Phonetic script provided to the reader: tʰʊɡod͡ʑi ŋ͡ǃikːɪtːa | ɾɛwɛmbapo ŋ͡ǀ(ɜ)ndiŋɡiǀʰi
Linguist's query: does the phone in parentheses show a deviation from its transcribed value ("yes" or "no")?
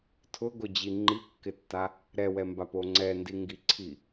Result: yes